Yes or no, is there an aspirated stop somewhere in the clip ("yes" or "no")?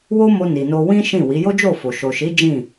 no